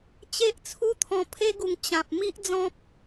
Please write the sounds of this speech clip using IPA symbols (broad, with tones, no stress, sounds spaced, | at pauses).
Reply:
t͡ɕ e˦ ʔ t͡sʰ u˦ t̪ʰ ɔ̃˧ pʰ e˧ ɡ u˨˩ ŋ t͡ɕ ã˨ p̚ m i˦ ʔ d͡z ɔ̃˦ p̚